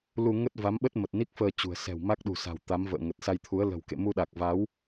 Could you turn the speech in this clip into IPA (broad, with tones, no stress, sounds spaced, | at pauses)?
l u˧ ŋ ə˦˥ t̚ v a˨˦ m ɓ ə˦˥ t̚ m ə˨˩ t̚ n i˦˥ k̚ f əː˧ t͡ɕ ṳ˨˩ ə̯ s ɛ̤˨˩ w m a˦˥ k̚ ɗ ṳ˨˩ s a̤˨˩ w t̪ a˨˦ m v ə̰ː˧˨ ŋ ə˨˩ t̚ s a˧ j t̪ʰ u˨˦ ə̯ l ə̤˨˩ w k ḛ˧˨ m u˧ ɗ a˨˩ k̚ v a˨˦ w